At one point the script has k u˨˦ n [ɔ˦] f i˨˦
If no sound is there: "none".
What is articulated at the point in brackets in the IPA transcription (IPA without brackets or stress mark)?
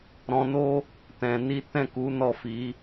ɔ˦˨